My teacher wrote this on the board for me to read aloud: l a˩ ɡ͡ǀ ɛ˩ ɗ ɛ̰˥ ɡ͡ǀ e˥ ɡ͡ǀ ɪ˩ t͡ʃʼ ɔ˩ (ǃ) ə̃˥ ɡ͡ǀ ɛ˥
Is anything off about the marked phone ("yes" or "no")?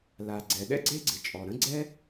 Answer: yes